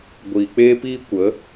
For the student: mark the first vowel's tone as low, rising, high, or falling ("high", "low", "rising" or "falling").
low